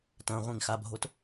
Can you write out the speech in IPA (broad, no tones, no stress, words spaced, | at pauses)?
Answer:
tɐ̃ʁʷĩŋ xabʱot